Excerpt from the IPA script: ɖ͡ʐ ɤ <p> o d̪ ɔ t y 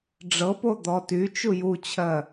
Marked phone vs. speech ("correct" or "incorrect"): correct